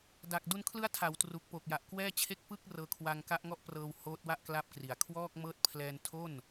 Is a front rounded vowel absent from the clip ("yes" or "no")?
yes